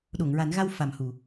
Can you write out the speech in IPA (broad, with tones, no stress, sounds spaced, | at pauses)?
ɗ o˨˩˨ ŋ ɹ a˨˩˦ n ɣ a˧ w f a˨˩ m h u˨˩˨